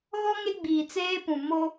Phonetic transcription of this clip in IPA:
ɣ ɔ˦ ŋ e˦ ɡ͡b iː˨ t͡s eː˦ p ũ˨ m o˦

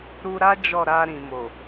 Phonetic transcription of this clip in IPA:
ɾ u˧ ɾ a˦ d͡ʒ ɔ˦˨ ɾ a˧ ɾ ĩ˨ m o˨

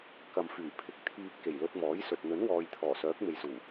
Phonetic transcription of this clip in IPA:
k ɐ˨ m f yː˨˩ pʰ ɪ˨ k̚ t̪ʰ iː˧ p̚ k e˨˩ j l ɵ˧ t̚ m ɔː˨˥ j s ɵ˨ t̚ n̪ ɵ˨˥ n w ɔː˨ j t̪ʰ ɔː˨˩ s œː˨˥ k̚ m e˨ j s uː˨˩

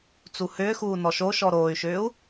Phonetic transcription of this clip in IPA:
t͡s u h ʏː x uː n ɔ ʃ o ʃ ɔ ɾ oː y̯ ʃ ʏː u̯

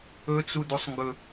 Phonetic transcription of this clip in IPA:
ɵ t͡s u d u sˤ ŋ ɡ ɵ

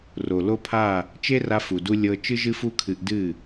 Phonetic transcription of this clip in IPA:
r o˨ l o˦ pʰ a˦˨ | t͡ʃ e˦ r a˧ f u˨ d u˧ lʲ ɤ˧ t͡ʃ ɨ˦ ʒ ɨ˦ f u˦ kʰ ɨ˧ ʔ d ɨ˦˨

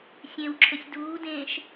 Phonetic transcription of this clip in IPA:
sʲ ẽ w ǁʰ ə sʲ d uː d ẽː ʃ

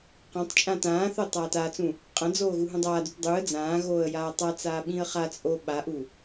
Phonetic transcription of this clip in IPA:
q ã tˤ t͡ʃʼ ã t ãː θ o tˤ aː t a t͡s ũ | qʼ ɐ̃ d͡z oː ɣ u ɦ ũ dˤ aː d u t dˤ u ə̯ d͡z ãː ɣ oː ə̯ j aː tˤ a t͡s aː ɓ ĩ ə̯ χ a t͡sʼ o ɓ a ʔ u

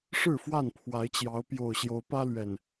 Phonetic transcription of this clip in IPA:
ʂ ɻ̩˥˨ f w a˥˨ n pʰ w a˨˦ ɪ̯ t͡ɕ j ɑ˨˦ ʊ̯ p j o˨˩ ʊ̯ ɕ j o˨˦ ʊ̯ p ä˦ l ɥ ɛ˨˩ n

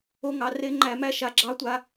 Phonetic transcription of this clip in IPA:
o˧ ŋ ɑ˨ r e˧ ŋ͡ǃ æ˨ m æ˧ ʃ a˨ ɡ͡ǁ ɑ˧ tʷ a˧

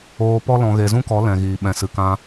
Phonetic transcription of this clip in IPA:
oː˧ p ɔ˦ l ɔ̃˧ ɣ e˧ z ũ˦ k ɔ˨˦ l ɛ̃˨ ɣ iː˨ ɓ ɛ̃˨ s ɨ˨ k ã˧

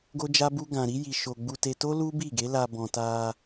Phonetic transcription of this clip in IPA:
ɡ o˦ d͡ʒ a˦ b u˦ ɡ ã˧ ɾ i˦ j i˧ ʃ o˧ ɡ͡b u˧ t e˧ t o˦ l u˦ b i˦˨ ɡ e˨˦ l a˧ b ɔ̃˧ t a˧

